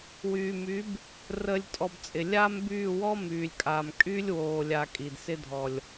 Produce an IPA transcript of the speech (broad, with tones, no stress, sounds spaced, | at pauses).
w yː˨ m y˨˦ b | r əː˨ lʲ tʼ ɔ˨ b t͡sʼ ɪ˨ lʲ aː˦ m b yː˦˨ w ɔ˦ m yː˨ lʲ kʼ aː˨ m kʼ y˧ lʲ w oː˨ lʲ a˨ kʼ i˨ d s ɪ˧ dʱ ɔ˨ lʲ